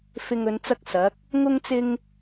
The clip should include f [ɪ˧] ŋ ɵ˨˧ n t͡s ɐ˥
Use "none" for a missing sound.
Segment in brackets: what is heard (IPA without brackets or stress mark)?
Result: ɪ˧